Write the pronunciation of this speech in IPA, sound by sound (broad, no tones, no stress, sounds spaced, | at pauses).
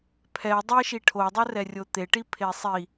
pʰ ɛ dˤ e ʃ i ʈʰ o dˤ ɵ r ɛ rʲ o t̪ e ʈ i pʰ e sˤ i